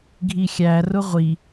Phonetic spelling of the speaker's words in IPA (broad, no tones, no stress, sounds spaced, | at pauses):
ɡʱ i xʲ æ r ʊ ʁʷ i